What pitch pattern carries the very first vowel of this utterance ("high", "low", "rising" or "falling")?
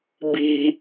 high